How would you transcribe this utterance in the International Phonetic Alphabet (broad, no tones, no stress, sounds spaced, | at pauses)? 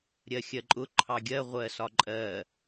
ɾʲ ɜ xʲ ɜ ǃʼ ʊ ǃʰ ɑ ɡʲ ɜ ʁʷ ɜ s ɒ ǃʼ ɜ